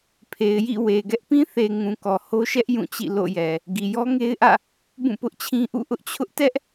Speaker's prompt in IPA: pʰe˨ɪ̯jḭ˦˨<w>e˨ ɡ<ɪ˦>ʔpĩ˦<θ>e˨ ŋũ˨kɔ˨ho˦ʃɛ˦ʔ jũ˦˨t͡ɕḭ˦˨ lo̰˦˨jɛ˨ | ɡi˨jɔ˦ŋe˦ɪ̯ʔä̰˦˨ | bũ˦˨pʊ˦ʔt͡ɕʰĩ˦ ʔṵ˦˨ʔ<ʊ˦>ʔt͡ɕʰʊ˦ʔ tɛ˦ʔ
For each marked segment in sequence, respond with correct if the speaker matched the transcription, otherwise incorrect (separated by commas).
correct, incorrect, correct, correct